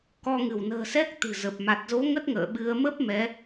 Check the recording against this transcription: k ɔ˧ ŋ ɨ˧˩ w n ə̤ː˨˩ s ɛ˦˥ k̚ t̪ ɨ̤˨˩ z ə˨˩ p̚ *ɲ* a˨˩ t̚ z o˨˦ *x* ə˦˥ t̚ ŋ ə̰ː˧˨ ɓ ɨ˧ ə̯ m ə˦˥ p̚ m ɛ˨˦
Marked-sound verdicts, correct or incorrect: incorrect: m, incorrect: ŋ

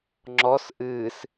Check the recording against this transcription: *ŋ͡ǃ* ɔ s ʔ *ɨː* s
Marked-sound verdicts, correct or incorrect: incorrect: ŋ͡ǁ, correct

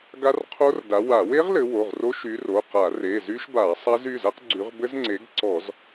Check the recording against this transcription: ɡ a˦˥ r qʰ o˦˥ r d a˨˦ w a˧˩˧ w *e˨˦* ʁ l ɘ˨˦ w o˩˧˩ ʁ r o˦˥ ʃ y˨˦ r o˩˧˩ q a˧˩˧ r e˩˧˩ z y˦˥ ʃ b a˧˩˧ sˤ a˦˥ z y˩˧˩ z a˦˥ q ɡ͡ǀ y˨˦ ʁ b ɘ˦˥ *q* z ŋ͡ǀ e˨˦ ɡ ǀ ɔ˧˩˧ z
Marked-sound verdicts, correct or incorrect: incorrect: e˦˥, incorrect: none

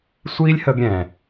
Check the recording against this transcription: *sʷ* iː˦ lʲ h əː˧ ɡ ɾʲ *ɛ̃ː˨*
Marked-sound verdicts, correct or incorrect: correct, correct

